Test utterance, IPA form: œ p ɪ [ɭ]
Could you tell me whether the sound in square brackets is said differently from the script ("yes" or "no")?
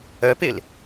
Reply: yes